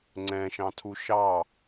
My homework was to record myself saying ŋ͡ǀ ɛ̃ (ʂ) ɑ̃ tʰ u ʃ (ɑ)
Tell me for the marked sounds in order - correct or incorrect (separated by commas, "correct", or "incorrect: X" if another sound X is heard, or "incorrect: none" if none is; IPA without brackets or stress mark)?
incorrect: ʃ, correct